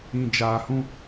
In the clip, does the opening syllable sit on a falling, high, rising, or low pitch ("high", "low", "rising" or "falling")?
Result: low